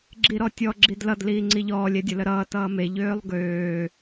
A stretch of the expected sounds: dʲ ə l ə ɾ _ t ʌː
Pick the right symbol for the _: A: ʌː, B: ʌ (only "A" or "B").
A